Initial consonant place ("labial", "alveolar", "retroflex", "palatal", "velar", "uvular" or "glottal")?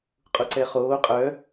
uvular